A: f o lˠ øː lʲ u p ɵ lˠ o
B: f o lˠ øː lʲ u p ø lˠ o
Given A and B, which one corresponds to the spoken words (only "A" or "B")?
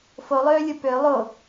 B